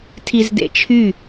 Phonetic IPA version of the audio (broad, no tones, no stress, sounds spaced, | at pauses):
tʰ i z d ḛ t͡ʃʰ y